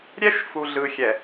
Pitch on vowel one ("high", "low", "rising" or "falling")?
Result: high